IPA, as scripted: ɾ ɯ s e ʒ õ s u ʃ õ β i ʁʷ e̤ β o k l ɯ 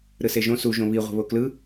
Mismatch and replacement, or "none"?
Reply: ʃ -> ʒ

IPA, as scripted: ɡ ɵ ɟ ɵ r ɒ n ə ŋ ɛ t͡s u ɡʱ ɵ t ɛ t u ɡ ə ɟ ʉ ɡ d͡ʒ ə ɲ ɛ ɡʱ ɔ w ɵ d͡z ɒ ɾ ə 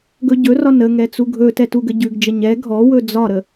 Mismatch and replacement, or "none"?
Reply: none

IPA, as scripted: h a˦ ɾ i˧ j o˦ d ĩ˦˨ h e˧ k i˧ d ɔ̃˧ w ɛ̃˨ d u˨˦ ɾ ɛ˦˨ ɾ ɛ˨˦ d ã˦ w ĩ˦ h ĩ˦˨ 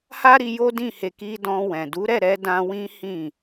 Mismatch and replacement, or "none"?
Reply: ã˦ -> ã˧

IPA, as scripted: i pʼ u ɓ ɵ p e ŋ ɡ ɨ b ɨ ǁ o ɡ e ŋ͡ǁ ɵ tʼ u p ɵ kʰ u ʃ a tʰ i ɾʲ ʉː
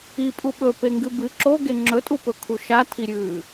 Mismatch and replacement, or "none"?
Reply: none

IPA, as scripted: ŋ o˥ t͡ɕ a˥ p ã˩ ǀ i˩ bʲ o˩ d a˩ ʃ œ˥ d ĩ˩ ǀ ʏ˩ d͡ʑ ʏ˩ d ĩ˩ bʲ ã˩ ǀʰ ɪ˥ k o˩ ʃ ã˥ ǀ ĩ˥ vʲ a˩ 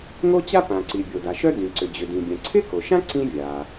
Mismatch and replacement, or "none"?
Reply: none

